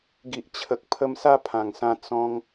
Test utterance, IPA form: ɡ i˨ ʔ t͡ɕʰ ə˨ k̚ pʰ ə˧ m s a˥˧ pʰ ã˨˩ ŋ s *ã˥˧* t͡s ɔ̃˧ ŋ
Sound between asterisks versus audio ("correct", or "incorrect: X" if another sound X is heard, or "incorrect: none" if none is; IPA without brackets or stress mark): incorrect: ã˧